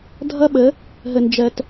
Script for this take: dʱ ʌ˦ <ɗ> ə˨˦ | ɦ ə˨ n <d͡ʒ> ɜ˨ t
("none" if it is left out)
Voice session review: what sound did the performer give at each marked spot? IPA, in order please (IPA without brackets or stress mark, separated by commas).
ɓ, d͡ʒ